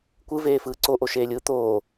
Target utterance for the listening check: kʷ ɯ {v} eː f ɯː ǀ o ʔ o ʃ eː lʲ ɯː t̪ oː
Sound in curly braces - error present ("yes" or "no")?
no